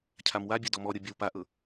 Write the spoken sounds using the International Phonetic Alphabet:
cʰ a m w a bʲ ɤ d ɔ m ɔ ɾʲ o bʲ ɔ w p a ʔ ɤ

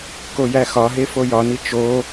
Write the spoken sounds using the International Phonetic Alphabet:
k o j æ x ɒ ɦ e f o j ɒ n i t͡ʃ o

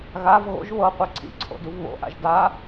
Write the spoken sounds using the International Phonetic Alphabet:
ɣ a v ɣ o̰ ʒ β ɤ qʷ ɛ ǀʰ ḭ ǀʰ o̰ d u v β o̰ ʔ a̰ ʒ d a

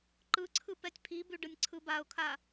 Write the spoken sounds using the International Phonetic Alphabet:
ǃ ɯ ǀʰ ɯ p ɛ tʲ pʰ i b ʉ ɖ ɯ nʲ ǀʰ ɯ b a ʊ̯ kʰ a

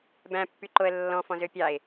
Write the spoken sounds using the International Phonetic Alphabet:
b æ̃ pː y ǃ o ə̯ lː ɔ̃ f ɔ̃ z ø pʲ ɑ ɪ̯

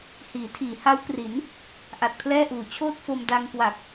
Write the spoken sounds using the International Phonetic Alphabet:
h iː˩˦ tʰ iː˩˦ h a˦˥ w k r i˩˦ n | ʔ a˨˩ t̚ pʰ l ɛː˥˩ ʔ uː˨˩ t͡ɕʰ oː˥˩ t̚ f o˧ m d a˧ ŋ k w a˨˩ k̚

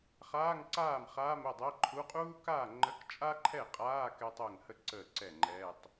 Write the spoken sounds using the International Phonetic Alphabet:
χ aː˧˥˧ ŋ ǀ aː˥˩ m χ aː˧˥˧ m ə˥˩ dˤ ɛ˧˥˧ ǃʰ u˧˥˧ qʼ uː˥ k aː˥˩ ŋ͡ǃ ə˧˥˧ k t͡ʃʼ a˥ ǃʰ ɛ˥˩ qʼ aː˧˥˧ k ɛ˥ tˤ əː˥˩ ŋ h ə˥ ǀ əː˥˩ ǀ ɛ˥˩ ŋ͡ǃ ɛː˧˥˧ tˤ

